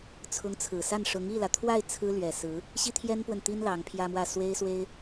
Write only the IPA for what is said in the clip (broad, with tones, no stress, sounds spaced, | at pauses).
t͡sʰ ʊ˧˥ ŋ t͡sʰ ɹ̩˨˩ s a˥˩ n ʂ ʊ˧˥ ŋ i˥˩ l ä˩ t̪ʰ w a˥˩ ɪ̯ t͡sʰ ɹ̩˥ l ɥ ɛ˨˩ s ɹ̩˧˥ | ɕ i˥ t̪ʰ j ɛ˥ n p w ə˨ n t̪ i˥ n l ɑ˧˥ ŋ pʰ j ä˥ m w ä˥˩ s w e˥ ɪ̯ s w e˥ ɪ̯